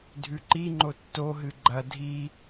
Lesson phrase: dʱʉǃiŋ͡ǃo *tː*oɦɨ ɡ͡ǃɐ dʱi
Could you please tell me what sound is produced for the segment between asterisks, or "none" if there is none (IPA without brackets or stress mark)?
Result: tː